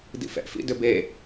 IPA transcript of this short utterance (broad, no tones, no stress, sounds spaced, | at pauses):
d ḭ f ɛ̰ f ḭ d ʏ b e